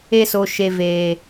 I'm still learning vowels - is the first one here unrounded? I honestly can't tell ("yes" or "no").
yes